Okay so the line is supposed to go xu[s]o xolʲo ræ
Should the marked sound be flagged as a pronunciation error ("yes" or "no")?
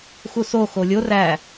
no